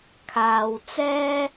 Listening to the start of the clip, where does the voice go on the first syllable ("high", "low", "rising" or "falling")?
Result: low